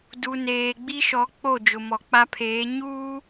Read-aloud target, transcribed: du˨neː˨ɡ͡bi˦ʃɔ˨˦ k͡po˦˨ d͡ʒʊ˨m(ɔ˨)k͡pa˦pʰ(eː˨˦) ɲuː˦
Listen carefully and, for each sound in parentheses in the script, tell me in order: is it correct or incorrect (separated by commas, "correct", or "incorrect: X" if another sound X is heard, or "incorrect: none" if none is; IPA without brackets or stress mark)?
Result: correct, correct